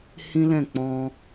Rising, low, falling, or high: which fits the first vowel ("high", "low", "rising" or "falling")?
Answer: high